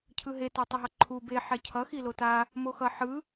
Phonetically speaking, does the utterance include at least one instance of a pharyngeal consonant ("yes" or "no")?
yes